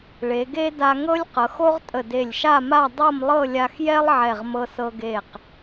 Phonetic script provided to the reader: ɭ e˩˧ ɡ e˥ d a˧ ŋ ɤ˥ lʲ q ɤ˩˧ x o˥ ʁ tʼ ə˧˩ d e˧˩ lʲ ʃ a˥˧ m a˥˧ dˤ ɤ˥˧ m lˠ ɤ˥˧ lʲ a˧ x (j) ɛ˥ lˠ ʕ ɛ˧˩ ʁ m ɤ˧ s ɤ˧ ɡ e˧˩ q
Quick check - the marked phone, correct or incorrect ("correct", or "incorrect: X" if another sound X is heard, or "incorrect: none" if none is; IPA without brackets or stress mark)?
correct